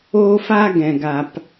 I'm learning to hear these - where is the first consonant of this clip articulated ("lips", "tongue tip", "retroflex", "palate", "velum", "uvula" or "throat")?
lips